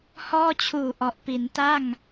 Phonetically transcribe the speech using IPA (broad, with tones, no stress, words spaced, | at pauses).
hɔː˥˩t͡ɕʰuː˨˩ ʔɔ˨˩ʔpi˩˦n ta˥˩ŋ